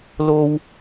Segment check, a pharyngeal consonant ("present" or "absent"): absent